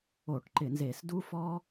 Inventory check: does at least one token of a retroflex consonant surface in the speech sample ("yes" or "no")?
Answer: yes